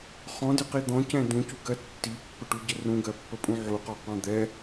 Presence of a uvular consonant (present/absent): present